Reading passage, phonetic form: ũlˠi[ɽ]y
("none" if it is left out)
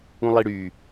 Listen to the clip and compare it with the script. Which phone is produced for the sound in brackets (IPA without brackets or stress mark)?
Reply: ɽ